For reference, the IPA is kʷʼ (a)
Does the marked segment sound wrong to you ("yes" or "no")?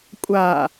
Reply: no